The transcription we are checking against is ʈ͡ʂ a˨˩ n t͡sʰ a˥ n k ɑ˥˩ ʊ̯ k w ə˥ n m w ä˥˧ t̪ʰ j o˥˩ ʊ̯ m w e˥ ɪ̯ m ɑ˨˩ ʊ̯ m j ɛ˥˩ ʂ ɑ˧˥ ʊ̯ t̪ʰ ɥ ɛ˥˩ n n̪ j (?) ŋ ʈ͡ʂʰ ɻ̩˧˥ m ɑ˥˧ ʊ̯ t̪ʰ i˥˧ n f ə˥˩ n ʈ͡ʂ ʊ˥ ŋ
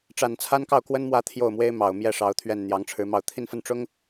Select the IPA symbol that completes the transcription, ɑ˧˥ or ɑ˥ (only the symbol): ɑ˧˥